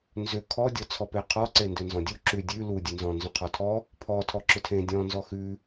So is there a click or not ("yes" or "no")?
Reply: yes